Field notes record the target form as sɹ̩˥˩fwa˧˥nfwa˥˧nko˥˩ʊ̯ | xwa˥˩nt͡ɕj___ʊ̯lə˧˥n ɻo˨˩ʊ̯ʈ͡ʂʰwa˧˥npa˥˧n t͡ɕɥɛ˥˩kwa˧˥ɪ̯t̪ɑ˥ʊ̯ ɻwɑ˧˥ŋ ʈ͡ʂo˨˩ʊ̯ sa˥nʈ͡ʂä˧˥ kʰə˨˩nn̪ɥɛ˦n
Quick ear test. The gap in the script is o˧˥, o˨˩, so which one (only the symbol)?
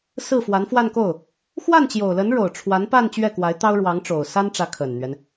o˨˩